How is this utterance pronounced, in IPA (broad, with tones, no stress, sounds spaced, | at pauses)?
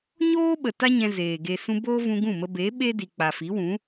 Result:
ɲ oː˦ ɓ ə˨ t a˦ ɲ ɛ̃˧ z eː˨ ɡ e˨ s ũ˧ b oː˦ v ũ˧ ɡ ũ˦˨ m ə˧ b e˨˦ ɓ e˦ d i˨ k͡p a˨ f i˨˦ w ũ˨˦